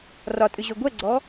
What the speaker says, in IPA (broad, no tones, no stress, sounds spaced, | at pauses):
r ɒ tʼ ɨ ʑ ø ɡʷ ɛ ɡ͡ǀ ɔ